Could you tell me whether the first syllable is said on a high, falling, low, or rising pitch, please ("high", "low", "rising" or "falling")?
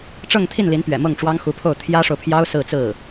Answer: falling